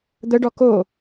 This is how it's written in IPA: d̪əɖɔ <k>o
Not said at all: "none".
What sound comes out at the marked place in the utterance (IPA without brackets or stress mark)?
k